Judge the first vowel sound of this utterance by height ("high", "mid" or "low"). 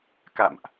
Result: low